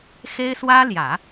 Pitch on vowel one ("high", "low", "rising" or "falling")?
high